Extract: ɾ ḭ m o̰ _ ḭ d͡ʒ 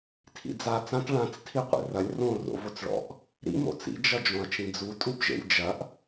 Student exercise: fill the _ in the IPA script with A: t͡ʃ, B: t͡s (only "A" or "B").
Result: B